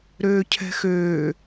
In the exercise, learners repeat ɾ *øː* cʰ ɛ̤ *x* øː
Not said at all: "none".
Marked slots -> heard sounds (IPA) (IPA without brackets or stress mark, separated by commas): øː, x